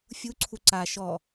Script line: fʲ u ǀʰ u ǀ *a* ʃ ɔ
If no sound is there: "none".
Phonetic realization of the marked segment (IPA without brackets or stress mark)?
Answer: a